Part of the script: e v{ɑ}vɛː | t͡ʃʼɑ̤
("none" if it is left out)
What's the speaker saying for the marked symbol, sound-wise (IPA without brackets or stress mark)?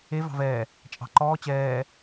ɑ̤